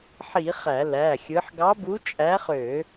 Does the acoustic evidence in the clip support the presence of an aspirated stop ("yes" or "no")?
no